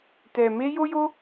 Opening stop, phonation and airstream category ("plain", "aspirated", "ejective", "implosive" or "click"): plain